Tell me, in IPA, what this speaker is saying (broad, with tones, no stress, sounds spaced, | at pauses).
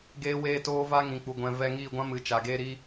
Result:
ɡ eː˦ w eː˦ t oː˦ v a˦ ŋ ĩ˨ k͡p u˨ ɡʷ ɛ̃˨ v ɛ˧ ŋ iː˦˨ ɡʷ ã˦ m ɨ˨ t͡ʃ a˨ ɡ eː˦ ɾ iː˦